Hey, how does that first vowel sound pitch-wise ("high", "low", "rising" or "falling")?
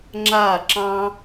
falling